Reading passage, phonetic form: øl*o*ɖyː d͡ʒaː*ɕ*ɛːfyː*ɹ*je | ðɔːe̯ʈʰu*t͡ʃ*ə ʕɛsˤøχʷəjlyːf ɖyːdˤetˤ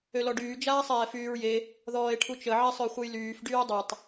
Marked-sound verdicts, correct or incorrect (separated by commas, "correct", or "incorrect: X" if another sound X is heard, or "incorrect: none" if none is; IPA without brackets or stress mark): incorrect: ɔ, incorrect: sˤ, correct, correct